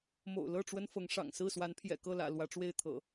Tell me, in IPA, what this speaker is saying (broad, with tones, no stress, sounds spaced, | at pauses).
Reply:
m o̰˨˩ ʊ̯ l ɤ˥˨ ʈ͡ʂ w ə˦ n f ɤ˨˦ ŋ ʂ ɑ̰˨˩ ŋ s ɹ̩˥˨ s w a˨˦ n pʰ j ɛ̰˨˩ k ɤ˥˨ l ä̰˨˩ l w ä˨˦ ʈ͡ʂ w e˥˨ ɪ̯ t̪ʰ ɤ̰˨˩